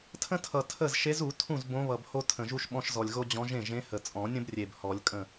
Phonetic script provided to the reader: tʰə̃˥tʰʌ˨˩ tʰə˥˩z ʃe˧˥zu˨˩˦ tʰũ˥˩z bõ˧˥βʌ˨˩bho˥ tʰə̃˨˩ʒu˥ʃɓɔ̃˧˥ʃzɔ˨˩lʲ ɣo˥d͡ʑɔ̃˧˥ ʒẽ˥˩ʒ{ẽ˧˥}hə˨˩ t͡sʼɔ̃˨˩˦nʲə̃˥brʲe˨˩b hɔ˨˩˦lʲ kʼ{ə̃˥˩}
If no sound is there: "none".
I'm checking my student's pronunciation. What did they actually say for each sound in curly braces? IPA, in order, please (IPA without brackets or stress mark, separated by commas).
ẽ˧˥, ə̃˥˩